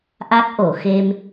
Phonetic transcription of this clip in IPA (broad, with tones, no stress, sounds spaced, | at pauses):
ʔ a˦˥ k̚ ʔ o˨˩˨ x e˧ m